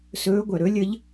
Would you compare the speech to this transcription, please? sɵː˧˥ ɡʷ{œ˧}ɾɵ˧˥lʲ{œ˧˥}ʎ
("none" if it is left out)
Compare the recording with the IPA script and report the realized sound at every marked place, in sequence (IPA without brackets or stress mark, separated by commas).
œ˩, ə˧˥